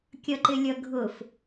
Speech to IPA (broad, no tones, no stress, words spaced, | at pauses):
kʲʌǃɪlʲʌɡʱʊf